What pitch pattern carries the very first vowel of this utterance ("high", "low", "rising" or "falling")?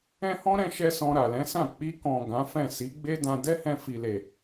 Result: high